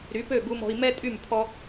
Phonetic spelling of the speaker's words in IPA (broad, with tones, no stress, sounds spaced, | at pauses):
ɾ y˩˥ p ø˥˩ ɡ u˧ m ɔ̤˧ i̯ m ɛ˥ tʼ y˥˩ m pʰ ɔ˥